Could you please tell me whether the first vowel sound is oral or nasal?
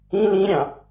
nasal